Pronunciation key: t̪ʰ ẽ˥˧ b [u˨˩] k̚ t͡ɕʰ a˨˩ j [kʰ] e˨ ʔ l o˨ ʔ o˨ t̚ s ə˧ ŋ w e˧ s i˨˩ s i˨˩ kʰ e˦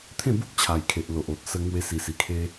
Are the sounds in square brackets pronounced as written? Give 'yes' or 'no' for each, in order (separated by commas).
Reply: no, yes